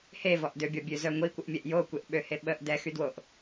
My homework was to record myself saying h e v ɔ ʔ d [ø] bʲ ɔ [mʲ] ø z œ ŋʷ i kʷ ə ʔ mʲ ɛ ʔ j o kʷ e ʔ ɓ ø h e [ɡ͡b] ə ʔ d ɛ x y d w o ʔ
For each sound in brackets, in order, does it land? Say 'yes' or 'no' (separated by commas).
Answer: yes, no, no